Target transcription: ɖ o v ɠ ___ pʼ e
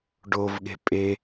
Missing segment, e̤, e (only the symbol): e̤